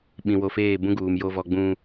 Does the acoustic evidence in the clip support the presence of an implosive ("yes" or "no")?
yes